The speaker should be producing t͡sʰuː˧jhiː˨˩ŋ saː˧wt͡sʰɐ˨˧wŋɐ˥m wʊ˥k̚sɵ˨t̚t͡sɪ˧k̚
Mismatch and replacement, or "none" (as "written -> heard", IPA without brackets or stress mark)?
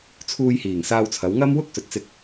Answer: none